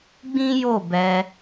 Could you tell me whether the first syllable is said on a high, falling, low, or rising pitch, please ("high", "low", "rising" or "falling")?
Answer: high